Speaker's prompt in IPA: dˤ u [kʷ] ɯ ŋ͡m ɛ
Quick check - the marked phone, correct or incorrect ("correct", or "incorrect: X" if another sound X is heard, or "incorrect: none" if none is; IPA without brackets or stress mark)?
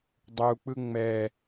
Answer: incorrect: k͡p